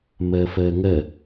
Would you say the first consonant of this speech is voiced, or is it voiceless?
voiced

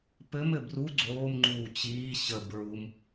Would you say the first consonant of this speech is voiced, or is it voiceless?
voiceless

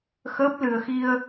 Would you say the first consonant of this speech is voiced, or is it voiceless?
voiceless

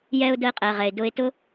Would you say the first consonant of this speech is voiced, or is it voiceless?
voiced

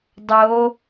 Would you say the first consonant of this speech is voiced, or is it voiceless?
voiced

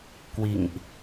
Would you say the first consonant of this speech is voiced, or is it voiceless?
voiceless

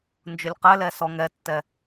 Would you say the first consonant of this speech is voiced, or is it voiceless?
voiced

